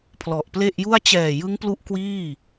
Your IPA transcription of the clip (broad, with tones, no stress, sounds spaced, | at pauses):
pʰ l ɔ˨˩ ʔ p l e˥˩ ʔ j u˥˩ a̯ t͡ɕ ɛː˨˩ j ɯ˦˥ ŋ p l u˦˥ ʔ k w iː˥˩